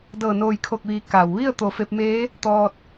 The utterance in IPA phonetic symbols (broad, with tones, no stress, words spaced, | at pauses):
dɤː˧˩noː˧˩jkʰo˧˩k̚ʋiː˩˧ ka˩wʋi˥˨ə̯ t̪o˧˩fe˧p̚meː˧˥ | t̪ɔː˧t̚